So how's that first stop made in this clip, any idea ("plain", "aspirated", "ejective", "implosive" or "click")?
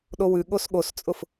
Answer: implosive